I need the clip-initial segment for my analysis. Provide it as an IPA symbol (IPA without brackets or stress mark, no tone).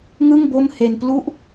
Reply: ŋ